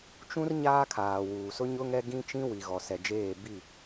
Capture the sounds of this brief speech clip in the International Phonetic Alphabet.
t͡ʃ ũ˦ r ɲ aː˦ kʰ aː˨ w uː˨ s ʊ˦ ɲ ʊ˦ ŋ ɛ˦ ɡ ĩ˦ t͡ʃ ĩ˦ w i˨ ɣ ɔ˨ s ɛ˨ d͡ʒ eː˦˨ b i˦˨

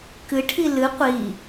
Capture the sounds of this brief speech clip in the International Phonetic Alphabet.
k ɨ ʈʰ i l ɨ qʷ i

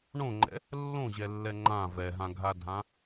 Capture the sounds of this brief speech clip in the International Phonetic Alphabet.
ɳ õ ŋ͡ǃ ɛ̰ | lː õ ʑ ɛ lː ɛ ŋ͡ǃ ã v ɛ ɦ ã ɡʱ a dʱ ã

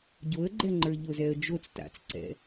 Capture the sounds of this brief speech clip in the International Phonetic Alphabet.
ɟ o ə̯ ɡ͡ǃ ɛ ŋ͡ǃ ə˞ ʎ o z ɛ ə̯ d͡ʒ o t͡s t a̰ t͡s ǀ ɛ̰

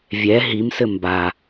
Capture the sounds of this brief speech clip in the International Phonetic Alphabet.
vʲ ɛ ɦ i m s ɘ m b a

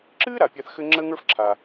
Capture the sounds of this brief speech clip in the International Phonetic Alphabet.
ǁ ɨː˥ ɾ a˩ pʲ a˧ θ x ɘ˥ ŋ͡ǁ əː˥ ŋ ə˞˥ f ǁʰ a˩

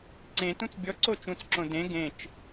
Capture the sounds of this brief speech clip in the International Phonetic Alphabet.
ǀ ẽ t ũ t͡s bʲ ɔ ǀ o t͡ʃ ũ t͡s ǁ õ d ẽ ɡ ẽ t͡ʃ

